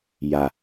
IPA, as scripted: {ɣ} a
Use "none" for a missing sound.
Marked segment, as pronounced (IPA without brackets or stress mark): j